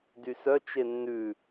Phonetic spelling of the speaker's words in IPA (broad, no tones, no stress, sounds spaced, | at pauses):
d y s œ t͡ʃ e nː ʉ